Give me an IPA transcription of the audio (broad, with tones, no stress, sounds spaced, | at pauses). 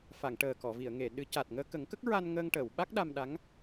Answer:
f a˨˩˨ ŋ ʈ əː˨˩ k ɔ˨˩˨ v i˨˩˨ ə̯ ŋ e˨˩˨ ɗ ɨ˨˩˦ c a˨˩ t̚ ŋ əː˧ k ə˨˩˦ ŋ k ə˦˥ k̚ ɹ a˧ n ŋ əː˧ ŋ ʈ əː˨˩˨ w ɓ a˦˥ k̚ ɗ a˧ m ɗ a˧˥ ŋ